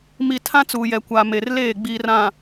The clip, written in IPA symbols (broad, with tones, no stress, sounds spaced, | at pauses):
m i˨ tʰ ã˦ t͡s uː˨ j ɛ˨ kʷ a˨ m e˨ r l eː˦˨ ɡ͡b iː˨ r ã˨